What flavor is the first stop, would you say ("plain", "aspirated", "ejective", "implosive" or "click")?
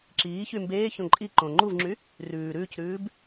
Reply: click